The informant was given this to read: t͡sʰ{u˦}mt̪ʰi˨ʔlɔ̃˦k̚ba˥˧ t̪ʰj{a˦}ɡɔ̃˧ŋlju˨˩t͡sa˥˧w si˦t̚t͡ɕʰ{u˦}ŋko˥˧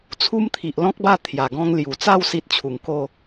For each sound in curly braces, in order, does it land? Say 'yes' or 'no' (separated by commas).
yes, no, no